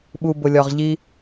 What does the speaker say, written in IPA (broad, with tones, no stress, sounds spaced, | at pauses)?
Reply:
ɓ u˨ b ʊ˨ lʲ ɒ˨ ʁ ʎ i˦